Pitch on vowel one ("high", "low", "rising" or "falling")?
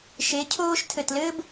rising